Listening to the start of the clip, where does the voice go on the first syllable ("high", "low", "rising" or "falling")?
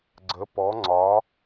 rising